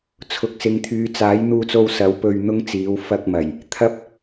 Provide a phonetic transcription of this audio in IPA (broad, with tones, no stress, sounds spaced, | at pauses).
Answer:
t͡sʰ ʊ˨ k̚ s ɪ˨˧ ŋ t̪ʰ yː˨˧ t͡s aː˨˥ j n̪ uː˧ t͡s o˧ w s ɐ˨˥ w p ɵ˧ ɥ n̪ ʊ˥ ŋ t͡s iː˨˥ w f ɐ˧ k̚ m ɐ˨˩ j | t̪ʰ ɐ˥ p̚